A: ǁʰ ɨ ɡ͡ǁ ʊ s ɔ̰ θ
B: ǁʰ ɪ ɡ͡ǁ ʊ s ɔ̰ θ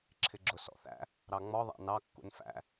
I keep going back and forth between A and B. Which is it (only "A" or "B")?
B